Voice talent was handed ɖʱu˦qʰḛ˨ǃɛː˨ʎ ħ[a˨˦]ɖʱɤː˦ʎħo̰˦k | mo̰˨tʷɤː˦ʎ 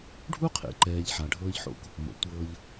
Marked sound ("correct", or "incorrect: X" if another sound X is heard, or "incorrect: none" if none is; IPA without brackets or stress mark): incorrect: a˨